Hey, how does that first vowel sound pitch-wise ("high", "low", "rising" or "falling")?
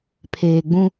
low